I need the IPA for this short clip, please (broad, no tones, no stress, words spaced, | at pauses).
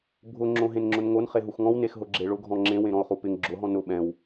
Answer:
bʱʊ ŋ͡ǁõɦẽnŋ͡ǁʊnŋon χeɦuxŋɔ̃w nexɦʊɡ͡ǁeɭʊ ɡʱɔ̃ŋ͡ǁẽ wẽɾɔ̃o̯χupɪŋ ɡ͡ǁʊ ɦɔ̃nʊ ɓɛ̃w